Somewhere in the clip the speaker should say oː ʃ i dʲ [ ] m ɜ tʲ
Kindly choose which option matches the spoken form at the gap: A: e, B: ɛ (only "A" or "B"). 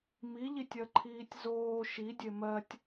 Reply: A